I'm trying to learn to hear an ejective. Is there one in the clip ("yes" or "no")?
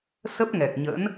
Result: no